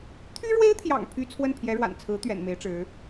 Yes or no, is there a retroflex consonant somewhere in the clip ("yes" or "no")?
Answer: yes